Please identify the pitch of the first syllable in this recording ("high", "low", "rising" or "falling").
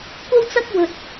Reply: high